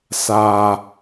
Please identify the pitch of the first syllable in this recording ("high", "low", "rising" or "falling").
low